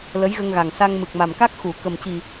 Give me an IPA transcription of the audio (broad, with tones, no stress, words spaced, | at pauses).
lə˧˥jɣə˧ŋɣa˨˩ŋsa˧ŋ mɨ˨˩k̚ma˨˩mka˦˥k̚ xu˨˩˦ kə˨˩mci˨˩